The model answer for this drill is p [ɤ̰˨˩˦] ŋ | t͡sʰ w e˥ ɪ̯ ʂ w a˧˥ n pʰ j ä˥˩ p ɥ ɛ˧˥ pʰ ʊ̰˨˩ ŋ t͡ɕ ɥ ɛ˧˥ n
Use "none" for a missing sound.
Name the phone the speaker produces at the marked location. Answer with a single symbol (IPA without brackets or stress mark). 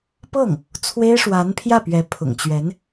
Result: ɤ˥˩